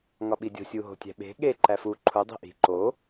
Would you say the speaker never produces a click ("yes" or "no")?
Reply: no